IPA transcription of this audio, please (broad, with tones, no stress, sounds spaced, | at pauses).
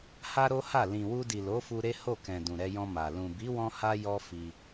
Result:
h a˦ ɾ o˦ h a˦˨ l ĩ˨ w u˧ d i˨ l o˨˦ f u˧ ɾ e˦ h o˦˨ k ɛ̃˨ d ũ˨ ɾ ɛ˧ j ɔ̃˧ m a˨ l ũ˨ b i˨˦ w ɔ̃˧ h a˦ j ɔ˦ f i˧